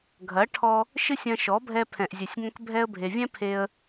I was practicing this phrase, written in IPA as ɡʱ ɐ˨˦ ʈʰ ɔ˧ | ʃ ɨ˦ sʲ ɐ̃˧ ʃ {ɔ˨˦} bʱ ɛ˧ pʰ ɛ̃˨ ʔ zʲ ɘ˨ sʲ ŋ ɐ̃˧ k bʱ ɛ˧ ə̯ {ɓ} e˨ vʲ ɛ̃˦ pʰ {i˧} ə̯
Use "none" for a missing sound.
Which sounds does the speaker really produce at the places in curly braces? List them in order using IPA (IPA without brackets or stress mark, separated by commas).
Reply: ɔ˨˦, bʱ, e˧